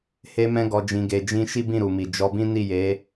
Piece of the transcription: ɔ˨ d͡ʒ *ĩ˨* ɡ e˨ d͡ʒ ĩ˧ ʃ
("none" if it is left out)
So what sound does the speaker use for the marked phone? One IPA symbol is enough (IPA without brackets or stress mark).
ĩ˨